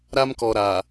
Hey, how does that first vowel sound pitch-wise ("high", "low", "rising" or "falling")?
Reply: high